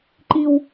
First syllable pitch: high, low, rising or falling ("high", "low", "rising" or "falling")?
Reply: high